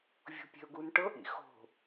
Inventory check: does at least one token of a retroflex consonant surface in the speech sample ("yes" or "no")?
yes